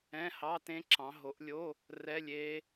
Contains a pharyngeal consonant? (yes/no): no